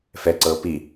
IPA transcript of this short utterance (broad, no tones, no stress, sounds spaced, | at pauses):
f ɛ ǀ ɤː p i